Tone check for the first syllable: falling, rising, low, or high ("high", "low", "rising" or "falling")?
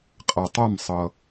low